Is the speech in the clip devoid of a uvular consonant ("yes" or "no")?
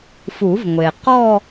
no